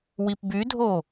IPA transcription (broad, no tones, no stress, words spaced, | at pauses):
wipbydʱo